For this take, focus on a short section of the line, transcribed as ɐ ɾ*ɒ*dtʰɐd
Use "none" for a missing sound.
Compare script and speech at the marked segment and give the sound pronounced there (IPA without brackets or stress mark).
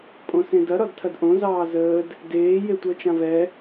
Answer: ɒ